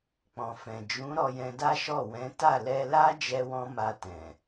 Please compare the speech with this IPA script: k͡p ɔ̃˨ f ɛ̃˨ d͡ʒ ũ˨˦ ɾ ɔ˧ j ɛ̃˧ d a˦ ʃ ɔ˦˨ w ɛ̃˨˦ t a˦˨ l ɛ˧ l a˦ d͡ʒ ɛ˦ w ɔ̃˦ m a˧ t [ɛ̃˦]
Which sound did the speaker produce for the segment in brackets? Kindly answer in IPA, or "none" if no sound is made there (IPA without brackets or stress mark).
ɛ̃˨